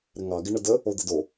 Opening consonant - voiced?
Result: yes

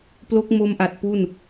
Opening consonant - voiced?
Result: no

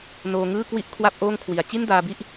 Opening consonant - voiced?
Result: yes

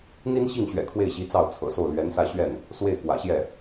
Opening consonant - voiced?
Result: yes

